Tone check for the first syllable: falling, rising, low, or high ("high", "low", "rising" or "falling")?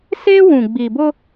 high